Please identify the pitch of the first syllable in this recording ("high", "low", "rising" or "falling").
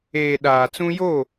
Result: low